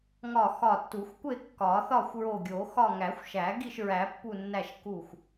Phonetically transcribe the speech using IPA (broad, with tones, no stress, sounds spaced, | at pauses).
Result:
ŋ ɒ˧˩ x ɒ˧˩ tː u˨˩˦ xʷ kʷ e˥˨ kː ɒ˨˩˦ θ ɒ˥˨ xʷ ɹ o˧˩ ɡʲ o˨˩˦ x ɒ˥˨ ŋ æ˨˩˦ xʷ ʃ æ˨˩˦ ɡ i˥˨ ʃ ɹ æ˨˩˦ pː u˧˩ nː æ˧˩ ʃ k u˧˩ xʷ